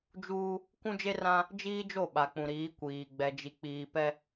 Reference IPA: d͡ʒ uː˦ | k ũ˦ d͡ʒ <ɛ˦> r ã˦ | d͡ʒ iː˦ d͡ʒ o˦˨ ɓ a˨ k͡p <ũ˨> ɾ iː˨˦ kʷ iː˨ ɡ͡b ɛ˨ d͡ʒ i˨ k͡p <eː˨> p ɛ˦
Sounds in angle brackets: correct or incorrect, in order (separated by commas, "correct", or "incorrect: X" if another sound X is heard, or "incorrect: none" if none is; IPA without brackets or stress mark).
incorrect: e˦, correct, incorrect: iː˨